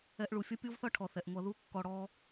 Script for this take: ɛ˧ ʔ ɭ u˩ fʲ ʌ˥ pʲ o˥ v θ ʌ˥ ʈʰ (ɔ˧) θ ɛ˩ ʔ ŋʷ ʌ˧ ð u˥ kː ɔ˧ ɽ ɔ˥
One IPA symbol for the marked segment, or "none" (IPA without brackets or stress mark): ɔ˩